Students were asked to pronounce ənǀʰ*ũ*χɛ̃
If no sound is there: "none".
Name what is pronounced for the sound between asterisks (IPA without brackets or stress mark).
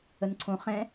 õ